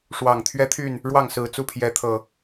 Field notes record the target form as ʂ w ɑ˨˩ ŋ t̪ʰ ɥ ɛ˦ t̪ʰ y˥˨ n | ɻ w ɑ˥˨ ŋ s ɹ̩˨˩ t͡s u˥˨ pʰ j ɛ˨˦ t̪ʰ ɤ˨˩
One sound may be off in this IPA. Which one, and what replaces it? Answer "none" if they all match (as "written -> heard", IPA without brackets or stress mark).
none